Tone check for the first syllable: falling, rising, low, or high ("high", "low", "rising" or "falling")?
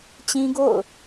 high